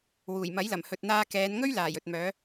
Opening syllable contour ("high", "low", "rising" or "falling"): low